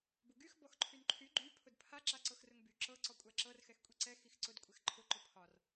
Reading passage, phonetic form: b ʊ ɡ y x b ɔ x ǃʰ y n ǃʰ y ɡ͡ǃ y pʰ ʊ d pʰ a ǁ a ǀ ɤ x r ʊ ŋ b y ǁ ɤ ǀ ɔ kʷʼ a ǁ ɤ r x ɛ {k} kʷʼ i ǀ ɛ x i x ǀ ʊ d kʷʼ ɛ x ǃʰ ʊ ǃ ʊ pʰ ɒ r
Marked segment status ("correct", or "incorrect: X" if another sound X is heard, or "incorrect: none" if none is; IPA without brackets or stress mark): incorrect: x